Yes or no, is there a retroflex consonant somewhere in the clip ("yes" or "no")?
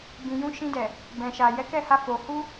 no